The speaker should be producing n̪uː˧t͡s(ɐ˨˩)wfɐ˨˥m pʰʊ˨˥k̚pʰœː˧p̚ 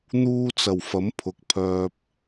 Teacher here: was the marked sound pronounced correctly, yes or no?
yes